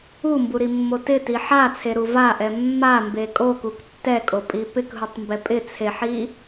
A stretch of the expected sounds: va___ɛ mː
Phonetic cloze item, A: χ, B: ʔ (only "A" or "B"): B